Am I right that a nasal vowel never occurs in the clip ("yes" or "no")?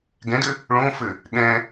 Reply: no